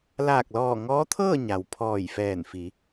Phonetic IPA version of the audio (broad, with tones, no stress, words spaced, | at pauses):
laː˧˩k̚lɔː˧˩ŋɔː˧˥t̪ʰɤː˥˨ ɲa˩w pʰɔː˧˩jfɛː˧˩n fi˩˧